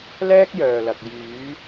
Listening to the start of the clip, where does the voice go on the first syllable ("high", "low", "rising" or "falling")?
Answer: high